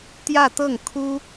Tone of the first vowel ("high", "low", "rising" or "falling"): falling